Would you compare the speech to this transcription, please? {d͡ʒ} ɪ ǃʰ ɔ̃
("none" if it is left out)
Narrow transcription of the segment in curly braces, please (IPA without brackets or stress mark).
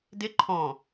d